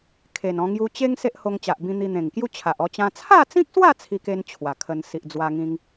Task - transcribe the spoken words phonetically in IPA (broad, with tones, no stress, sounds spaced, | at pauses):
kʰ e˨˩ n ɔ̃˧ ŋ j u˧ t͡ɕ e˦ ŋ s e˦ ʔ h o˧ ŋ t͡ɕ a˨ ʔ b ĩ˧ n̪ i˧ n̪ ẽ˨˩ ŋ k j u˦ t͡ɕʰ a˨ ʔ ɔ˧ t͡ɕ ã˧ t͡sʰ a˥˧ t͡s ĩ˦ k̚ s w a˥˧ t͡sʰ i˦ k e˦ n t͡ɕʰ w a˨˩ kʰ ə˧ n s i˨ ʔ d͡z w a˧ ŋ ĩ˧ ŋ